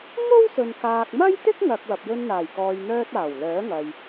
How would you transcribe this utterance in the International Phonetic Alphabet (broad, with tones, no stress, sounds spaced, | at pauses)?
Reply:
ŋ o˥ w s ɵ˨ n k aː˨ k̚ m ɐ˥ j t̪ ɪ˥ k̚ ŋ ɐ˨ k̚ w ɐ˨ p̚ j ɵ˧ n n̪ aː˨˩ j k ɔː˨ j n̪ œː˧ t̚ aː˨˩ w l œː˨˥ ŋ ɐ˨ j